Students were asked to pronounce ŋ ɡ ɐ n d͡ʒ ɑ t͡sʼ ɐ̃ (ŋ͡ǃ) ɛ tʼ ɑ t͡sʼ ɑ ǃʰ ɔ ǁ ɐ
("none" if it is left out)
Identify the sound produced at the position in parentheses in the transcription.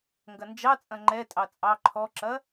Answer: ŋ͡ǃ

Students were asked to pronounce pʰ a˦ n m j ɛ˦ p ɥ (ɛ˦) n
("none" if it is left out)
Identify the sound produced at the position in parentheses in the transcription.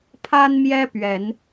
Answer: ɛ˨˦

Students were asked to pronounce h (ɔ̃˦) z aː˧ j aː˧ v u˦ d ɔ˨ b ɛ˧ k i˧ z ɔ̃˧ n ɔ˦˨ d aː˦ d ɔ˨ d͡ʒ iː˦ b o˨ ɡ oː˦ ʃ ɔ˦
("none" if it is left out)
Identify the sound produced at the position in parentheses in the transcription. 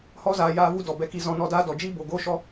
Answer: ɔ˦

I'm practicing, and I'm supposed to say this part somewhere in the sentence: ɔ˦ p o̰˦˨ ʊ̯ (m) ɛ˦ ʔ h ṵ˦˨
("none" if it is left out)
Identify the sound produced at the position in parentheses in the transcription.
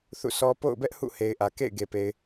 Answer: b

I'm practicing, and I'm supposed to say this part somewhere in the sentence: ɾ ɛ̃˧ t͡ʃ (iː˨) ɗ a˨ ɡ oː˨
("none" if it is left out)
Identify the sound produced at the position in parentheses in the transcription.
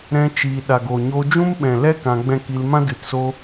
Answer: iː˨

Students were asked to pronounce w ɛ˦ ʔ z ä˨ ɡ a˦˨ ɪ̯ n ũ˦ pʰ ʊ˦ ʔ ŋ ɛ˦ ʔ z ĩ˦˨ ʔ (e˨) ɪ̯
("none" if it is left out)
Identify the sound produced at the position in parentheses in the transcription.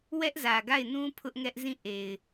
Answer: e˨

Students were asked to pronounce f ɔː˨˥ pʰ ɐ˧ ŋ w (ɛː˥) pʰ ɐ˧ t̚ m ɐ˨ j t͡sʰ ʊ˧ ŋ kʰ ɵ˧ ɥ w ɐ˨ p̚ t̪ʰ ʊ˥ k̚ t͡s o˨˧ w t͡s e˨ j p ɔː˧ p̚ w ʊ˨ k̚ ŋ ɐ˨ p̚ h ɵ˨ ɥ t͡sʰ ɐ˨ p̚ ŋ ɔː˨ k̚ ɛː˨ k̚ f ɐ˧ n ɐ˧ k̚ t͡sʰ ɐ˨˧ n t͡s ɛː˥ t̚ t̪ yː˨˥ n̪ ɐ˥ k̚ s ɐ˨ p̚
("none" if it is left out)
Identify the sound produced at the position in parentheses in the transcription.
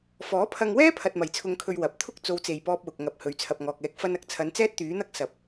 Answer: ɛː˥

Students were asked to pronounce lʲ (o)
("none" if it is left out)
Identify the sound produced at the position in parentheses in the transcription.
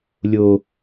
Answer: o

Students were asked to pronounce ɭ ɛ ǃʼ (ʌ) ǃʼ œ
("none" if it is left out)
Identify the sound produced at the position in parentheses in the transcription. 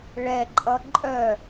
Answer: ʌ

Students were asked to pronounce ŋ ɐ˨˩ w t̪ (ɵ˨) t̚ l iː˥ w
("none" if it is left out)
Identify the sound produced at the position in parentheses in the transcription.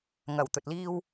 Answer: ɵ˨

